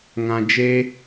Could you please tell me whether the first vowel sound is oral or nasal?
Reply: nasal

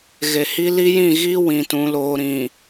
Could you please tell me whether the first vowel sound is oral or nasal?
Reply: oral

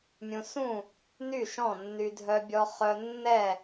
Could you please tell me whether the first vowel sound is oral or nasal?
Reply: nasal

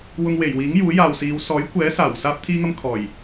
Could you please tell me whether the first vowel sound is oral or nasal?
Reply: oral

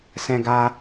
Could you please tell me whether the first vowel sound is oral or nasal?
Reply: nasal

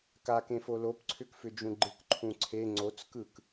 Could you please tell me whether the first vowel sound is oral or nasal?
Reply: oral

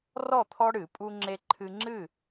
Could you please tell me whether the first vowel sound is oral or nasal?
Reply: oral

